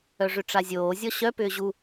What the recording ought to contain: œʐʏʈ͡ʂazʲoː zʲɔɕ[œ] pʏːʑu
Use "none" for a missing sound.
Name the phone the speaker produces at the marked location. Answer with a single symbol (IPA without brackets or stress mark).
œ